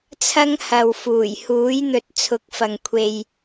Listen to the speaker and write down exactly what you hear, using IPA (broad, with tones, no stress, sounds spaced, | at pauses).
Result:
t͡sʰ ɐ˥ ŋ h ɐ˨ w f uː˨˩ j h uː˨˥ j n̪ ɵ˨ t̚ t͡sʰ ʊ˨˥ k̚ f ɐ˨ ŋ kʷʰ e˨ j